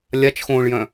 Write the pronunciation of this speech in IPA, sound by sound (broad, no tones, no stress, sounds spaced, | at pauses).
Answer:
lʲ a t͡ʃ x õː ɭ j œ̃